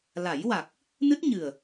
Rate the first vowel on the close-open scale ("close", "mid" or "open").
open